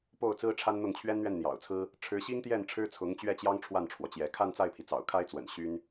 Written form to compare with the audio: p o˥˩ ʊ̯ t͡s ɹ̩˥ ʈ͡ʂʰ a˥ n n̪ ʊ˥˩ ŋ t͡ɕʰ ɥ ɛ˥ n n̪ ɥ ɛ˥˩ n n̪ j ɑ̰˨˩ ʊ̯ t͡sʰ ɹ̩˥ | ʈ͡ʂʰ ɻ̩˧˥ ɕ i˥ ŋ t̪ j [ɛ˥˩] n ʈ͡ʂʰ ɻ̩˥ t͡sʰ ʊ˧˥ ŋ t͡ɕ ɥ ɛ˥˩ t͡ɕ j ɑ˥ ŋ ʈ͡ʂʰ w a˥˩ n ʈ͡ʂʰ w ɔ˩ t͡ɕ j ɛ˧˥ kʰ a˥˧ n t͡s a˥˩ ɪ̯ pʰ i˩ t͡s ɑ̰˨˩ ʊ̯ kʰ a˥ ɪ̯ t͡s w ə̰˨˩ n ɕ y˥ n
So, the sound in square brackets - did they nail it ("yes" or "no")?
yes